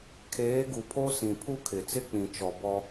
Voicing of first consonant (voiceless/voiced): voiceless